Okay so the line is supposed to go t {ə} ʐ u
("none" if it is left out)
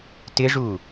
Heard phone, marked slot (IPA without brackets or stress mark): ɪ